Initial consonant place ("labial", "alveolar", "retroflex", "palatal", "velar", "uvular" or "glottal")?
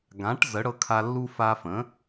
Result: velar